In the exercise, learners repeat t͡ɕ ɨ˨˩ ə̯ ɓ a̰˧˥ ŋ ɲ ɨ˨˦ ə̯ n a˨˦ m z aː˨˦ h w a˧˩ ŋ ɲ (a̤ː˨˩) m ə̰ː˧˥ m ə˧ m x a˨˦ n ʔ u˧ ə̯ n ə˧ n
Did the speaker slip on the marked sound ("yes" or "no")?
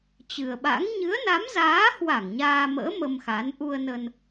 yes